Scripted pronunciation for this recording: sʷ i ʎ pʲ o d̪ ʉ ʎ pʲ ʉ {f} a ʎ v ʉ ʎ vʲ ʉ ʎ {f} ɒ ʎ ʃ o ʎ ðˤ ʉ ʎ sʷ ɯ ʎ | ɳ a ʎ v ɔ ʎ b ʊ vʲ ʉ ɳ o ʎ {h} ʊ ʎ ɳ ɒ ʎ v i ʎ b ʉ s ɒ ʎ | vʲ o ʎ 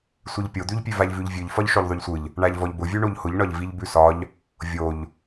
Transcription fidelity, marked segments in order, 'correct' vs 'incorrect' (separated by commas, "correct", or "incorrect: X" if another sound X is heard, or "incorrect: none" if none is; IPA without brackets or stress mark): incorrect: v, correct, correct